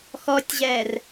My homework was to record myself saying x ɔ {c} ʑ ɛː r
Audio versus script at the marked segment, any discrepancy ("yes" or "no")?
yes